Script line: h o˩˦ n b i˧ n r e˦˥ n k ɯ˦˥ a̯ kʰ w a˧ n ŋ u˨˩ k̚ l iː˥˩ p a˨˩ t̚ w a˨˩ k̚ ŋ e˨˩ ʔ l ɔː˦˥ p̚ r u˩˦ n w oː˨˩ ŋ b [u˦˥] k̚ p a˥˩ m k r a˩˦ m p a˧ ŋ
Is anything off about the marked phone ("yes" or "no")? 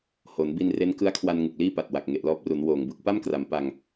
yes